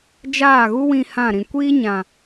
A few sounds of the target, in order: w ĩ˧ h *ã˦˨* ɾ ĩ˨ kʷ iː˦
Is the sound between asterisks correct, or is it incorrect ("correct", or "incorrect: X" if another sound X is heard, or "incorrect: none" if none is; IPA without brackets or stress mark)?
correct